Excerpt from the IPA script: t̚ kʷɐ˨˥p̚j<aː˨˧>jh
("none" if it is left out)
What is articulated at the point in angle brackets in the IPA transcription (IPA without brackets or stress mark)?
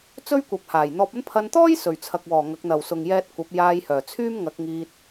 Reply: aː˧